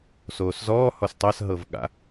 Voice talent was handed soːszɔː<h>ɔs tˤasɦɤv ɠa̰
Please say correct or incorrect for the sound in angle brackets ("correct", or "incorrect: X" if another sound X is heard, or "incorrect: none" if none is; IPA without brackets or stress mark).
correct